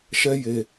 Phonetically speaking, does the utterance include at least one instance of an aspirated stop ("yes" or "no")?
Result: no